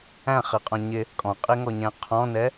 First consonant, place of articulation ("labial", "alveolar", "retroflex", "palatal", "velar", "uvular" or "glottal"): uvular